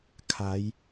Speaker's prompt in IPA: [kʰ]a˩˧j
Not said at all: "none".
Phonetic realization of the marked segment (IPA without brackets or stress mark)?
kʰ